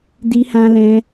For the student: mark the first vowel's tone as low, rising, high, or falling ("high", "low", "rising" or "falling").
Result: high